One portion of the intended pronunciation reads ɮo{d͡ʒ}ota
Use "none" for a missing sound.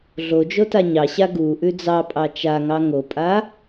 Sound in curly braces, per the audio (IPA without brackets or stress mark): d͡ʒ